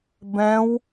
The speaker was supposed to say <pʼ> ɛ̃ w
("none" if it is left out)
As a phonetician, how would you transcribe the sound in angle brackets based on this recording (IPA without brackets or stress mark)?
b